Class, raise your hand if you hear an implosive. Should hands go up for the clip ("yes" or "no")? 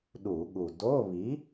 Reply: yes